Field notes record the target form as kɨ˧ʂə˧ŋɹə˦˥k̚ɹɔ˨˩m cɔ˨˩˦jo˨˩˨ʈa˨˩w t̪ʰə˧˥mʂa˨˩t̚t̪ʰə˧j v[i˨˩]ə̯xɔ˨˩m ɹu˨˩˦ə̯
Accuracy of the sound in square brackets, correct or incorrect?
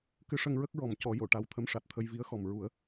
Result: incorrect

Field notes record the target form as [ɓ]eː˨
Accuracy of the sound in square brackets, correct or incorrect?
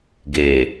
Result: incorrect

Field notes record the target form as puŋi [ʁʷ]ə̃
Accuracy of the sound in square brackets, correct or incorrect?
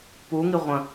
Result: correct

